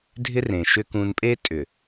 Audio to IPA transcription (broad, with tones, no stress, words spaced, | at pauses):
dʱɪ˦rẽ˨ʃʏ˦ kũ˦n pʼeː˦tʼʏ˨